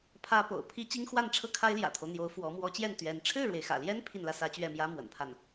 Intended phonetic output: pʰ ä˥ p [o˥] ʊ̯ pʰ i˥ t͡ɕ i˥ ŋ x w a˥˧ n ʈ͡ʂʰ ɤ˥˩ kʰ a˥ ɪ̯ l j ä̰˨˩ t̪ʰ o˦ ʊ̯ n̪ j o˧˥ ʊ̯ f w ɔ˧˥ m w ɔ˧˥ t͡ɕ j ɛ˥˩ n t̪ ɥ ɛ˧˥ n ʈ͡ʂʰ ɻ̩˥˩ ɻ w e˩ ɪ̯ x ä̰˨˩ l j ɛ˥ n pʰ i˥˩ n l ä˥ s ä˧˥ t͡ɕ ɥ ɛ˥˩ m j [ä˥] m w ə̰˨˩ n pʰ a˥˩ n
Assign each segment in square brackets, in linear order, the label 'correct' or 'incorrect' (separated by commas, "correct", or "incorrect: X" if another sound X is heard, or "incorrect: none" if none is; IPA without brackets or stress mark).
incorrect: o̰˨˩, correct